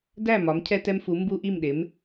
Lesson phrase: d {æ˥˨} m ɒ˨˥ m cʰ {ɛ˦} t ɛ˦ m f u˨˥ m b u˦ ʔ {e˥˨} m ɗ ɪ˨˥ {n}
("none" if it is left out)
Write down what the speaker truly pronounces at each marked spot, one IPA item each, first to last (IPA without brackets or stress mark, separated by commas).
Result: æ˥˨, ɛ˦, i˥˨, m